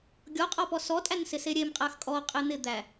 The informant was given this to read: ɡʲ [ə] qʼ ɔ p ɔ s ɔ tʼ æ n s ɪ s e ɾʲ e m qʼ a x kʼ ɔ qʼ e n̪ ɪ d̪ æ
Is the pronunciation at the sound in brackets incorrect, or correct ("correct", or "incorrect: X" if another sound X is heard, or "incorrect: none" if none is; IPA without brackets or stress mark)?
incorrect: ɔ